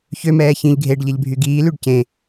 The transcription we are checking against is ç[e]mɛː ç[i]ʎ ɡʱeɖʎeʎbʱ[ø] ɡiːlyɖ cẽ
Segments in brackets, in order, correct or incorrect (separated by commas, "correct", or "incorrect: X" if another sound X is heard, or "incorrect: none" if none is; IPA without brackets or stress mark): incorrect: ø, incorrect: ĩ, incorrect: y